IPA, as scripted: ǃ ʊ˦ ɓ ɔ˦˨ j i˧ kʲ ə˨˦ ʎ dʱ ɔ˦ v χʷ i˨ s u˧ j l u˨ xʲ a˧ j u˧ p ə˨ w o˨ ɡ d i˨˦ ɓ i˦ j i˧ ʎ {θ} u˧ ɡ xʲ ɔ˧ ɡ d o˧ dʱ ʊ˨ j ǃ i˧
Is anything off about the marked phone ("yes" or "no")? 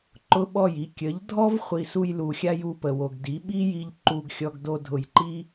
yes